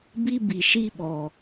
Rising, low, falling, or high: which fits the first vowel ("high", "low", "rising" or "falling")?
high